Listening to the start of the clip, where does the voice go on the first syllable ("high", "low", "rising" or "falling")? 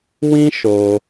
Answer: high